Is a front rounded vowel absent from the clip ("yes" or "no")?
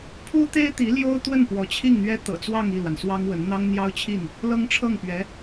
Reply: yes